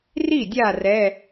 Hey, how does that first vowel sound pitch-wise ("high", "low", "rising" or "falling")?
falling